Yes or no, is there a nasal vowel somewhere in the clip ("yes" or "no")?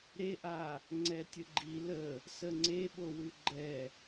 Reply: no